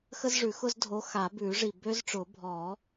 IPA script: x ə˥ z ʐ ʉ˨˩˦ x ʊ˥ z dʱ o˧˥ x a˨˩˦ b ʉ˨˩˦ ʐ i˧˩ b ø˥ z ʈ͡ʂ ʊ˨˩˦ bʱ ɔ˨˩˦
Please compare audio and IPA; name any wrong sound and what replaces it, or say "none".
none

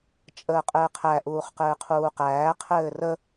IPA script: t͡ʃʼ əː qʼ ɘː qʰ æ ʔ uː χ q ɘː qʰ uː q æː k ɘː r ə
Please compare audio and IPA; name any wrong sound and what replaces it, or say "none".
k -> qʰ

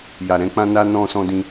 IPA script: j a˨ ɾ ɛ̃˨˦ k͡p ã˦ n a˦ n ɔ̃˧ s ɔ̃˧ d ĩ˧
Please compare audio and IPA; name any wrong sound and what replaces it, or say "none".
none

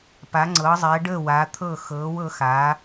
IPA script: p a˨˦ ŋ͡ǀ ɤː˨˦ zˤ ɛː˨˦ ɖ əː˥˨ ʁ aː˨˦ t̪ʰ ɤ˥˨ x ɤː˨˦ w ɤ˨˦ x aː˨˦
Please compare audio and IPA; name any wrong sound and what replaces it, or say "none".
ʁ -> w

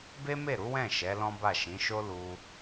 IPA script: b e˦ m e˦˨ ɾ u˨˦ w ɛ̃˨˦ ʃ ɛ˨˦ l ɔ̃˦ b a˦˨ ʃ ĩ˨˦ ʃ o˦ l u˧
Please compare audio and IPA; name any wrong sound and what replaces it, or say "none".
ɛ̃˨˦ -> ɛ̃˦˨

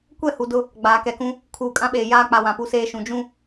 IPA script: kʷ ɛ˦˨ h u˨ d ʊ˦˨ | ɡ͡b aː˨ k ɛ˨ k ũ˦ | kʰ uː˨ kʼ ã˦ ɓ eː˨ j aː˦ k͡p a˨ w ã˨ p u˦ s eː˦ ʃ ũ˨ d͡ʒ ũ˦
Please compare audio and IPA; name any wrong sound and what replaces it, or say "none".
none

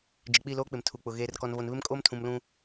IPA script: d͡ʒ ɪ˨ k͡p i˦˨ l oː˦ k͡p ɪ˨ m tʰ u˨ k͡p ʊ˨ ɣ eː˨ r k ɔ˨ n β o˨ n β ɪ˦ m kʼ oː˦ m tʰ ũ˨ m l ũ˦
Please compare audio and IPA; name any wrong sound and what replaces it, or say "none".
none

